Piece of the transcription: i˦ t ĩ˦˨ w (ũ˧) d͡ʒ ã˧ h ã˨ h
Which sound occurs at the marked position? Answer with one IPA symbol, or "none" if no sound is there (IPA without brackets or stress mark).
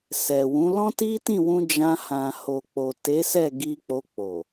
ũ˧